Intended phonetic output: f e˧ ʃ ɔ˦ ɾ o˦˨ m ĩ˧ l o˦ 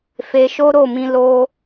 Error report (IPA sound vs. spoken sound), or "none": ɔ˦ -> o˦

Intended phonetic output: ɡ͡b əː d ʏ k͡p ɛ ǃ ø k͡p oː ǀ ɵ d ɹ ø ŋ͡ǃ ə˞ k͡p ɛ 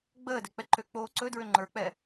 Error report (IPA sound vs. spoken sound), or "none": ʏ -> ɛ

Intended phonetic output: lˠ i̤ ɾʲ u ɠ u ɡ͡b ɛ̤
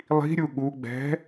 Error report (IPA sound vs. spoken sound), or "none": none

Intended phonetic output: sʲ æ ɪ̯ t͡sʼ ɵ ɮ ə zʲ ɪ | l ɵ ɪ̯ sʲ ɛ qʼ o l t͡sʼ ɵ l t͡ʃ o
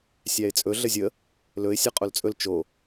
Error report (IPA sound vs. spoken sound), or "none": ɪ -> ə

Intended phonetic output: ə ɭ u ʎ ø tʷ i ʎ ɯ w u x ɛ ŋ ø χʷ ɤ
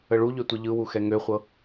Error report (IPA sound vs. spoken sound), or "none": none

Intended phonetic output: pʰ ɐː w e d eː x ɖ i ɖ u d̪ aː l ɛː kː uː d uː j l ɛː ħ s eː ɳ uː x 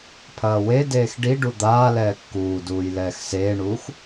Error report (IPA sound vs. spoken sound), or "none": ħ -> x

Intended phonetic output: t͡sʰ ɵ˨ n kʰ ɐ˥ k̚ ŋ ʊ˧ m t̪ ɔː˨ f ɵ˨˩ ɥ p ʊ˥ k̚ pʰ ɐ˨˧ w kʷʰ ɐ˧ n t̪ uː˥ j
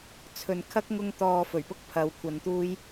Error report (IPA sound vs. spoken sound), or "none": m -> ŋ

